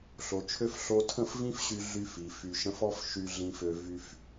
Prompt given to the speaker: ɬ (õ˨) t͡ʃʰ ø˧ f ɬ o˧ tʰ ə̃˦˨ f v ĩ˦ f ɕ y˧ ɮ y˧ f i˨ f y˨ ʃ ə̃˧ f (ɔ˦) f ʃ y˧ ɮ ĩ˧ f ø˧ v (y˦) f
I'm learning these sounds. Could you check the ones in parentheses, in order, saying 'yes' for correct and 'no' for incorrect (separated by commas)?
no, yes, no